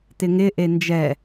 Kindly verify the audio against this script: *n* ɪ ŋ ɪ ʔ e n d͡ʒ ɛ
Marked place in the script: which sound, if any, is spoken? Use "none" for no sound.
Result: t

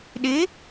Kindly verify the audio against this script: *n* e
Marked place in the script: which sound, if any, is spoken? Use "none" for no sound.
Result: ɗ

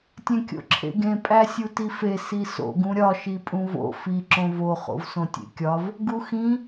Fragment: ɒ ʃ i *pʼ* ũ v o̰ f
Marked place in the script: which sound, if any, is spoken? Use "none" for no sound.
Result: pʼ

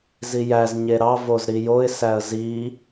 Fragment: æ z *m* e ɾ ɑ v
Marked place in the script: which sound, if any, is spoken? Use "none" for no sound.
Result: ɲ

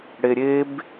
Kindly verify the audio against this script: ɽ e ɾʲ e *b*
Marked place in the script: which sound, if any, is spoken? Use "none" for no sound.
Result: b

